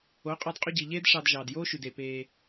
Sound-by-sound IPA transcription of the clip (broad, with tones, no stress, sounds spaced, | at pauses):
o˨˦ qʼ ɑ˧ d qʼ y˧ ɟ i˨ ʎ eː˦ d ʂ ɑ˧ d ʒ ɑː˨ d j oː˦ ʃ y˨ d e˨ p eː˧